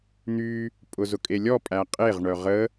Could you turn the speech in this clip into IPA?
n̪y | pʼʊzʊkʼelʲɔ pʼæqʼeʁ ɳœʁə

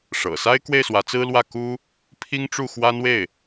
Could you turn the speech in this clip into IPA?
ʂɤ̰˨˩ sa˥ɪ̯kwe˥˩ɪ̯ swä˧˥t͡sɹ̩˥lwä˥˩ ku˥ | pʰi˥ŋʈ͡ʂu˥˩xwa˥nwe˥˩ɪ̯

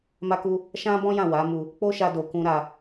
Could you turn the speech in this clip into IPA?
ma˦ku˦ | ʃã˦bɔ̃˦ jã˦˨wa˨˦mu˧ | k͡po˦ʃa˧do˨kũ˧ ɾa˧

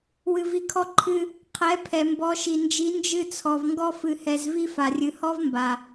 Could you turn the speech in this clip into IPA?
wɨ˧vi˧kʰɔ˦ ǃʰɨ˧ | qʰɛ˨˦ pʰɛ˨mbɔ˨˦ʃi˨nd͡ʒi˨˦ nd͡ʒɨ˧t͡sʰɔ˨v ŋɡɔ˧fɨ˨hɛ˨zvi˧ fa˨rʲɨ˨hɔ˦vmba˨

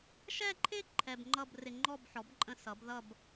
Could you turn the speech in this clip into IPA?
ʃɛ˥˧ǃʰɪ˥˧ ǃʰɛ˧bŋ͡ǃʌ˥˧b rɪ˧ŋ͡ǃɔ˥˧bħɔ˩˥bǃʼə̃˧˥ sʌ˩˥bðʌ˥˧b

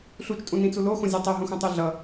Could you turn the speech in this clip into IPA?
ɬut͡ʃtʼũnĩt͡su loxõzʲu tˤɛɦũxũtˤe ɮʌ

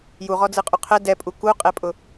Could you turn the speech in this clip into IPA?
juʁɔd͡zɯqʼu qʰɛ dɛpʼu kuqʼɛpʼʊ

